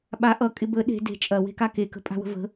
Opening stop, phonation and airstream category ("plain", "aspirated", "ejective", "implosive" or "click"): implosive